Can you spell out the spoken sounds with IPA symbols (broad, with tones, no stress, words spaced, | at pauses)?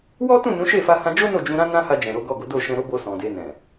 wɔ˦tũ˦˨ nũ˨˦ ʃe˦˨fa˧ hã˧d͡ʒo˦ no˦˨d͡ʒũ˧ ɾã˦nã˦ha˧d͡ʒɛ̃˨ ɾo˨˦ɡɔ˦˨ɡo˨˦ do˦˨ʃɛ̃˧ɾo˦bo˧ sɔ̃˨de˧nɛ̃˨